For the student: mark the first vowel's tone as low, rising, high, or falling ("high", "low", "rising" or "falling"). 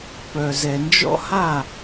low